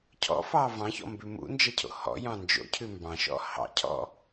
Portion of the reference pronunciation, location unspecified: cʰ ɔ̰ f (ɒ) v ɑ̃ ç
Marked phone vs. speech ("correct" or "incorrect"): incorrect